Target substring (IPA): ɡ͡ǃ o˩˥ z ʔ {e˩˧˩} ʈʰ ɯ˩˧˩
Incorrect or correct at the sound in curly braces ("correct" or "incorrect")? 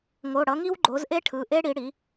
incorrect